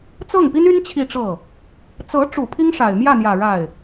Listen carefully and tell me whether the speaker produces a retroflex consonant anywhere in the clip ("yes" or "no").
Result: yes